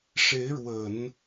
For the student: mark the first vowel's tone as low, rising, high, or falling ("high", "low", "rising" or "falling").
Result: rising